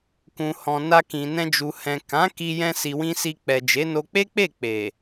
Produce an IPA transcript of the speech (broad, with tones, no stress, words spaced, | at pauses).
kũ˨ hɔ̃˨ na˧kĩ˨nɛ̃˧ d͡ʒu˨hɛ̃˨ kã˨˦ki˧ jɛ̃˧si˨wĩ˧ si˧k͡pɛ˨d͡ʒe˨˦ no˧k͡pe˦k͡pe˦˨ k͡pe˨